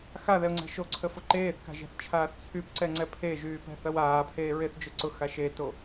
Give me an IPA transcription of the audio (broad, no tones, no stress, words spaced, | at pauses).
xaðɛʊ̯ŋ͡ǀɛ̤ ʃoǀʰəfʊ ǃeːθka̤ʒɛ̤θt͡ʃʰaːθ t͡sʰypǀɛŋ͡ǀɛ pʰeʒyːpɛ̤θɐw aːpʰeːɹeθd͡ʒʊ ǀʊxa ʃeto